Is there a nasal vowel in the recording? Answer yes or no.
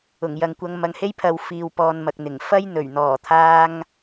no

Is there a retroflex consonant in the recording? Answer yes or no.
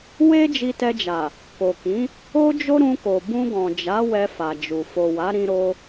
no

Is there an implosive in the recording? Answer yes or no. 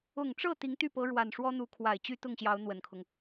no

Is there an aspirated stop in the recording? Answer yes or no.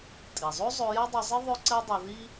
no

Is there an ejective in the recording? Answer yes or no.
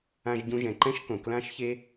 no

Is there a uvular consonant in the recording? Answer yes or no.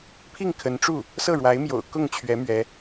no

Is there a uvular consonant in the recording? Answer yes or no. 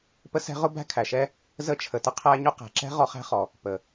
yes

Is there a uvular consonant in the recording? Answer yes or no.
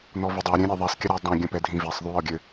no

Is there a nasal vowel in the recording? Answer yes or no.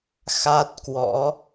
no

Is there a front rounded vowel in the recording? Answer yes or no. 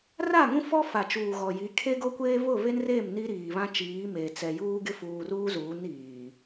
no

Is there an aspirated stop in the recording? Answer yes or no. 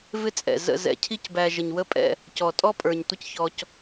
yes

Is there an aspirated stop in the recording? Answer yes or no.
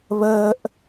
no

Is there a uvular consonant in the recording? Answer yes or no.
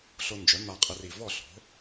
yes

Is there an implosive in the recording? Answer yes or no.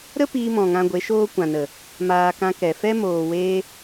no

